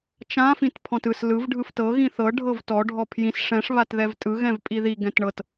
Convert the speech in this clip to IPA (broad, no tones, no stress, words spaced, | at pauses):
t͡ʃã fĩtpʰɔ̃tɯs lɯv ɖʱɯftɤ ɣĩθɤ ɖʱɤvtɔ ɖʱɔpʰjĩs ʂɛ̃ʂ βatðɛvtʼɯ ɣɛ̃vpʼiði ɡɛ̃tɳɤt